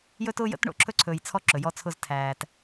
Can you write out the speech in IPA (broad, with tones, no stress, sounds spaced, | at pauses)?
j ɵ˦ t ʊː˦ j ə̰˦ t ɳ o̰˨ ǁʰ ɵ˦ ǀʰ ɵː˨ j t͡sʰ ɔ˦ ǁ ɵ˨ j ɔ˦ t͡sʰ ʊ˦ z tʰ æː˨ t